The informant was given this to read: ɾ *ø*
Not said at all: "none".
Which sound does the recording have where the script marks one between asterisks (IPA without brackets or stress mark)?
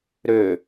ø